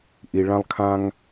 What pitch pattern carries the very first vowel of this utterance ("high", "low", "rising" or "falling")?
low